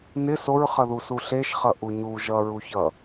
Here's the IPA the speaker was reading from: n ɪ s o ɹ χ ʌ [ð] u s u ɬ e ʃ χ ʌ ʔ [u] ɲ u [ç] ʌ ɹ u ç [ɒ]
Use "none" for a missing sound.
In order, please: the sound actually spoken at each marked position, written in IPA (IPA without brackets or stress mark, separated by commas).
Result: ð, u, ʒ, ʌ